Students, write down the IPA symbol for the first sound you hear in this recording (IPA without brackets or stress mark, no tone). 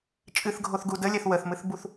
t͡ʃʼ